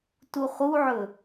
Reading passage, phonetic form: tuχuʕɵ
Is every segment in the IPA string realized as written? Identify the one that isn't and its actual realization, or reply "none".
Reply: none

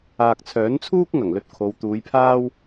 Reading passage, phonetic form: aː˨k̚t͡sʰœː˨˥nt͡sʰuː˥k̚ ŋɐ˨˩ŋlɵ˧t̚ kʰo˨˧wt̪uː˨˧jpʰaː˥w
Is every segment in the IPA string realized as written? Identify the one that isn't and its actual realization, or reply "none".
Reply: none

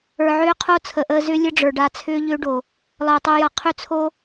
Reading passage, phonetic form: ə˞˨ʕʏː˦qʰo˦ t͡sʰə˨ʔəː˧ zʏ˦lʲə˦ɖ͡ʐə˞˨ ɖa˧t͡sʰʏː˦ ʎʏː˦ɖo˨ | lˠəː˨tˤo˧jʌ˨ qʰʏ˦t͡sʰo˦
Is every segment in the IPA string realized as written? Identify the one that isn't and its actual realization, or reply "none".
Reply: none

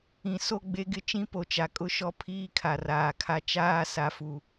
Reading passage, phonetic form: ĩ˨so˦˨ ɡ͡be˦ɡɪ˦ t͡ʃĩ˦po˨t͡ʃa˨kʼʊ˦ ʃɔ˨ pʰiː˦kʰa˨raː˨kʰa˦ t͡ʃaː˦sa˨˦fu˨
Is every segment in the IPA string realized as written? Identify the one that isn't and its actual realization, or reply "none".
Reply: ɔ˨ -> ɔ˦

